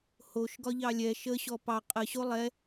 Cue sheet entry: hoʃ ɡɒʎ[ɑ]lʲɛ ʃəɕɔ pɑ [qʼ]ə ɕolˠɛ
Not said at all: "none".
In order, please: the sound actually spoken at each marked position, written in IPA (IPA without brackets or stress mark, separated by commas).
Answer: ɑ, qʼ